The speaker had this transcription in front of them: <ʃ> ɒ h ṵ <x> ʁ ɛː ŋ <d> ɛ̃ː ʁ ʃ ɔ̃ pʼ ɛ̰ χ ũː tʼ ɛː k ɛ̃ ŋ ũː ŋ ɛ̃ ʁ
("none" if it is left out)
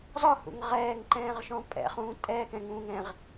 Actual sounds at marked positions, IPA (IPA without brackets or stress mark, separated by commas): z, ŋ, ǃ